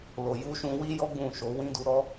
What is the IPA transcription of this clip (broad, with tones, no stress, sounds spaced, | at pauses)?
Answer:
l o˨ j u˧ ʃ ũ˧ w i˦ j ɔ˦ ɡ͡b ũ˦˨ ʃ o˨˦ w ĩ˦ d u˧ ɾ ɔ˦